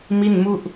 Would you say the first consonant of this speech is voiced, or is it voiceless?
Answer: voiced